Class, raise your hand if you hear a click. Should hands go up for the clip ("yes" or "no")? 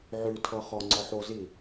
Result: yes